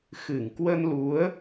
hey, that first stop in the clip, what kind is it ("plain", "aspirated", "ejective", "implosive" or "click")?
plain